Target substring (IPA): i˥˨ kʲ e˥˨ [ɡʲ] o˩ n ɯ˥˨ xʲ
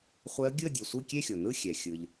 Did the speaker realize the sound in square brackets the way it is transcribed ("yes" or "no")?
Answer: no